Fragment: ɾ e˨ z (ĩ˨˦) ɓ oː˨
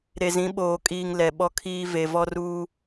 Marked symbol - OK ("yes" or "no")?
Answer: yes